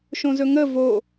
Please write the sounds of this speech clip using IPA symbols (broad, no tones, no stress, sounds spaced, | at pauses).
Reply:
ʃ õ z ɵ ŋ ə v o